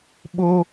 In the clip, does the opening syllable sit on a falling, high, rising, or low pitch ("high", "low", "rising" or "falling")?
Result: high